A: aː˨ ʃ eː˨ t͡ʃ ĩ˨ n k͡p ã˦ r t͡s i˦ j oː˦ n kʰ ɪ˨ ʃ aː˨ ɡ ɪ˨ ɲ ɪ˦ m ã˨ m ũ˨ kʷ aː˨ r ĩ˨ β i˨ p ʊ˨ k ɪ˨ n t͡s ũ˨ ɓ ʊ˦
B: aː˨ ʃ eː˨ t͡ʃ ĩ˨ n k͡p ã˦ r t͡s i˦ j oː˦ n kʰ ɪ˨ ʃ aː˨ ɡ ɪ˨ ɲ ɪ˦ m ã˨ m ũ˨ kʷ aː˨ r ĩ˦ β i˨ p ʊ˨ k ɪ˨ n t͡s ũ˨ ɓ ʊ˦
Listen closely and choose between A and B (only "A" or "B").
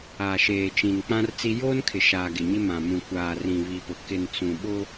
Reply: A